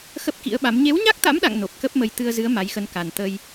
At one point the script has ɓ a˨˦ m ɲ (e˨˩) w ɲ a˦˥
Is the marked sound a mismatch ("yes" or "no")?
yes